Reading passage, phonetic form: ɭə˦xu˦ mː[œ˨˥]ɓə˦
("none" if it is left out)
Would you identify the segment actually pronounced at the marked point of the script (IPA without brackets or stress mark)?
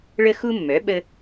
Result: œ˨˥